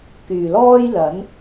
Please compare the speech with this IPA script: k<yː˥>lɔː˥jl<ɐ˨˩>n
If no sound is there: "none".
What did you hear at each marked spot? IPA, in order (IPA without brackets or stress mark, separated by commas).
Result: yː˨˩, ɐ˨˥